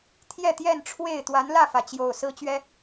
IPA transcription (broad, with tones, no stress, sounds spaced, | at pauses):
t̪ʰ j ɛ˥˨ t̪ j ɛ˥˨ n ʈ͡ʂʰ w e˥˨ ɪ̯ t̪ w a˨˦ n l ä˥˨ f ä˩ t͡ɕ j o˨˩ ʊ̯ s ɹ̩˦ t͡ɕ ɥ ɛ˨˦